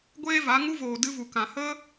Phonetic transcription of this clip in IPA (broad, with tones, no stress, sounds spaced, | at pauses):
ɡʷ eː˦ v a˨˦ ŋ u˧ v oː˨ d ɨ˧ v u˨ k ã˨ h ə˦